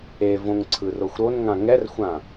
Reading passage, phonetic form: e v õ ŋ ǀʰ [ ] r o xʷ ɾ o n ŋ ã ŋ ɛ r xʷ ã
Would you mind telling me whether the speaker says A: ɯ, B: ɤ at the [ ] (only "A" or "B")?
A